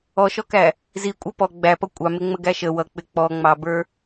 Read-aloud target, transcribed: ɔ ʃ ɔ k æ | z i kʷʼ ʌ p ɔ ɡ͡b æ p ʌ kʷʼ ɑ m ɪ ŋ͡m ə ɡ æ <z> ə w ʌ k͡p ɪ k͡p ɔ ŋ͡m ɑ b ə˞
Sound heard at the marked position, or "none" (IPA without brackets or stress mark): ʃ